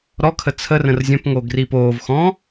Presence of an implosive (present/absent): absent